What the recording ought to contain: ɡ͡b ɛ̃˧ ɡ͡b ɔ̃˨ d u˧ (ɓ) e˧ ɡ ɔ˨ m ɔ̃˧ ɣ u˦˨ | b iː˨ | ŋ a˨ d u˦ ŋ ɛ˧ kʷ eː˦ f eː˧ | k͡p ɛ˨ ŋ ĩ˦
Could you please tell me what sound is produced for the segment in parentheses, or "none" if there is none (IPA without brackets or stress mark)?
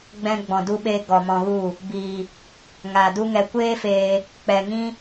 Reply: ɓ